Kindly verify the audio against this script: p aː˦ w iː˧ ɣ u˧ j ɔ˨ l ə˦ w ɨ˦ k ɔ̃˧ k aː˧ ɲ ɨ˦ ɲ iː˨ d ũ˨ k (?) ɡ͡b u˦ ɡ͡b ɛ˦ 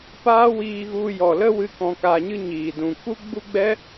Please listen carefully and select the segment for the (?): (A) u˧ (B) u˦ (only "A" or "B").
B